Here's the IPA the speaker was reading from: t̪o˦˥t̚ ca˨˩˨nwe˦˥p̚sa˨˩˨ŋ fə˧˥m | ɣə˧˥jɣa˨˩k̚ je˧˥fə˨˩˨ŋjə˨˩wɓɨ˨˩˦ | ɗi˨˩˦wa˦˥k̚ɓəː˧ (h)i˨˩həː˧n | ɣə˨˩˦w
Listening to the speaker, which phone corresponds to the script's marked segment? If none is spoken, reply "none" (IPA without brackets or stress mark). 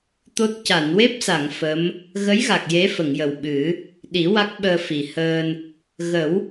f